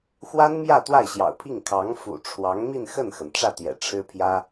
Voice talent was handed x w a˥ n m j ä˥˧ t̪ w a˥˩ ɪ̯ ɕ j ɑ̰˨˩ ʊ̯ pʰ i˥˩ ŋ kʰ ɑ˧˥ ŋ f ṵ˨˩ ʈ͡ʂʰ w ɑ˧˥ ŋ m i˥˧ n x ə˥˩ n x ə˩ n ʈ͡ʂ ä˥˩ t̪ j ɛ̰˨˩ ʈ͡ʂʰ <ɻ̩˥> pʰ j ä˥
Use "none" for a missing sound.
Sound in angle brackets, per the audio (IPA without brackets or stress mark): ɻ̩˥